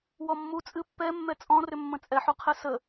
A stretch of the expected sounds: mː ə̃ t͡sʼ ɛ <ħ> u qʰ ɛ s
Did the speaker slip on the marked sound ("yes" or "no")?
no